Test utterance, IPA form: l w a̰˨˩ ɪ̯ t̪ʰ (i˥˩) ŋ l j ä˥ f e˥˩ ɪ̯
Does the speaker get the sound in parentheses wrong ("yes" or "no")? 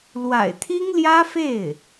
yes